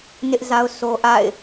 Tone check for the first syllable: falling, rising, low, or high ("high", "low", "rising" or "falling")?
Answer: high